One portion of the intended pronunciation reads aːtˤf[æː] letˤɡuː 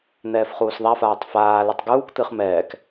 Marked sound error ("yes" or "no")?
yes